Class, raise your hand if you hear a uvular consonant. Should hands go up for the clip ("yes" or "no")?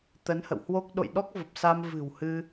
no